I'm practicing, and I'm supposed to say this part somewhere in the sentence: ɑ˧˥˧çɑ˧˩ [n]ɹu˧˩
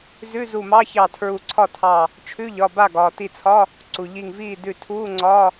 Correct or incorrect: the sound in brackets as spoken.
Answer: incorrect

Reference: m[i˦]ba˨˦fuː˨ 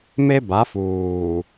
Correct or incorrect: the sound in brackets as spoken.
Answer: incorrect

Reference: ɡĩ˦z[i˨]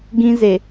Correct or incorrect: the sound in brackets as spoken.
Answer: incorrect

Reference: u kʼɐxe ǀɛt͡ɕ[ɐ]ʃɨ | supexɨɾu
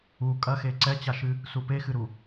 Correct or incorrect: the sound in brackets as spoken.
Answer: incorrect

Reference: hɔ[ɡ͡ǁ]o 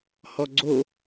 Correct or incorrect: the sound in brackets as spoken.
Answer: incorrect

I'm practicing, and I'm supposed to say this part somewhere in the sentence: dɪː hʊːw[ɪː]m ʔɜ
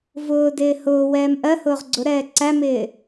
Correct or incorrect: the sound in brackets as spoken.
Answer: incorrect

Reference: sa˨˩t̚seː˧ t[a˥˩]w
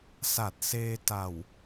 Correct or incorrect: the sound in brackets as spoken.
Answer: incorrect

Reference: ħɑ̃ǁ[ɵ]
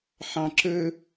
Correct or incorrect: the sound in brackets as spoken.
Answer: correct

